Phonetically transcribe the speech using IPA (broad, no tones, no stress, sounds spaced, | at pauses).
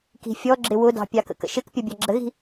k i̤ fʲ ɔ ɡ͡ǁ ɪ w ʊ d ɑ̤ pʲ ɑ k ə̰ k ə̰ ʃ ɪ k pʲ ʌ bʲ ɑ ɡ͡ǁ ə ɣ i̤